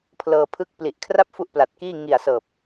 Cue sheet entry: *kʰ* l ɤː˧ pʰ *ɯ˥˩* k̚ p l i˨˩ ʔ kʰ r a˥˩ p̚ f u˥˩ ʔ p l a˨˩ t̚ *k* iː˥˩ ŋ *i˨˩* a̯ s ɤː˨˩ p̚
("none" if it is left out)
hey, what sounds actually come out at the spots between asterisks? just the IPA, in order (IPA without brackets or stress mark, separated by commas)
pʰ, ɯ˥˩, k, i˨˩